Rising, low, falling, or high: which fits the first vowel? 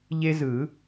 high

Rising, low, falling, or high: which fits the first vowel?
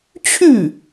falling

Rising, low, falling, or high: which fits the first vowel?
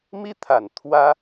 high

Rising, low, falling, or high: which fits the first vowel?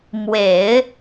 low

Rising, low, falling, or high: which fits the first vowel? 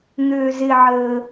low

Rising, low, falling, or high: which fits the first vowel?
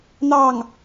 falling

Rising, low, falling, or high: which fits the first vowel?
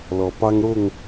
low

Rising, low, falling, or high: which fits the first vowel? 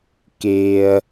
high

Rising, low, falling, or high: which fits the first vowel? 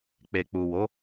low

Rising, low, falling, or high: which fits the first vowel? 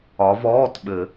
rising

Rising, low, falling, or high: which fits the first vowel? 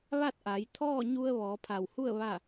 falling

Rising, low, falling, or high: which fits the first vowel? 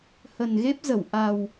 low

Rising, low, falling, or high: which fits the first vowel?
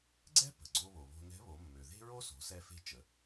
high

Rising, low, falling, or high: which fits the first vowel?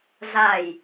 low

